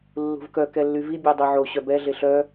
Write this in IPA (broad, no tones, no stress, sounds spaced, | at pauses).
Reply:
lː ṳ v k œ k ɛ lː y v i bʲ ɛ dˤ ɛ ʕ o ɕ œ b ɛ ɮ e ɬ œ